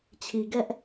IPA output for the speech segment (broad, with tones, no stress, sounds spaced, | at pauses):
t͡ɕʰ i˨ ɡ ɛ˦ ʔ